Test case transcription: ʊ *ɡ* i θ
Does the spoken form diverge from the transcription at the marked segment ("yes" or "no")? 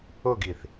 no